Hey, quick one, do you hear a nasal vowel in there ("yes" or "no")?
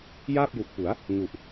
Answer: no